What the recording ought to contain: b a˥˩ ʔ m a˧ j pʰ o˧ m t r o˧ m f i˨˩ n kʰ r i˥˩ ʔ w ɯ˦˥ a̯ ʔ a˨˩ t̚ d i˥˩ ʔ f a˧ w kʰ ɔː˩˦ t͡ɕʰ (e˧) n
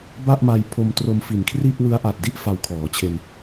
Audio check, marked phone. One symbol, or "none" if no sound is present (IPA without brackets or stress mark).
e˧